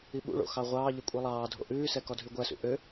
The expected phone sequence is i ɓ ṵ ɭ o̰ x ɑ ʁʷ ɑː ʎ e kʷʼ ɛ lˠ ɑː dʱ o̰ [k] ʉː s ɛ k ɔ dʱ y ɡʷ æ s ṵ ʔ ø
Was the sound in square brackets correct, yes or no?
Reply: no